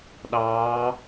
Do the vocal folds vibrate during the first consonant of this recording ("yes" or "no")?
yes